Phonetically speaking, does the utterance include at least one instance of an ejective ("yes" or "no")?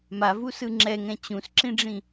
no